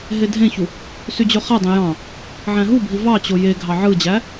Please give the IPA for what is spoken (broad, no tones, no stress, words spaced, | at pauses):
ɦedʱẽçu | syd͡ʑøχædˤẽ jɑ̃ | ʕæ̃ɦubʱi vɑt͡ɕo jeɡʱɑ ʕɯd͡ʑæ